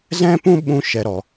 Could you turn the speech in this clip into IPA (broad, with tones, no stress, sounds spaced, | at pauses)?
z ɛ̃˦ p ũ˦ ɓ ũ˦ ʃ ɛ˨ ɾ ɔ˨